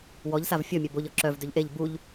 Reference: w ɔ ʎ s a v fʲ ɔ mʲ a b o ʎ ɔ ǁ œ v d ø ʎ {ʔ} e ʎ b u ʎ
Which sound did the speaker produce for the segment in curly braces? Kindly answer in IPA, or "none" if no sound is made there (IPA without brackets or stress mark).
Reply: ʔ